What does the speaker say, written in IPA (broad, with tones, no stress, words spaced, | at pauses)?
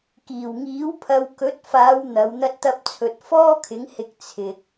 kiː˨˩wŋiː˨˥wpʰɐ˨˧w kɵ˨˥t̚faː˨˧w n̪ɐ˨˧wn̪ɐ˥t̚t̪ɐ˥p̚t͡sʰɵ˧t̚ fɔː˥kʰɪ˨˥ŋhɪ˧k̚ t͡sʰɪ˧k̚